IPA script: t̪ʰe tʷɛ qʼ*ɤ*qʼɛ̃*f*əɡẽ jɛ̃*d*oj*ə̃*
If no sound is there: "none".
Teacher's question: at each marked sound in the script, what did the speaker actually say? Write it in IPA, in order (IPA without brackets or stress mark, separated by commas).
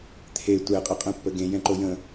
ɤ, pː, ǃ, ə̃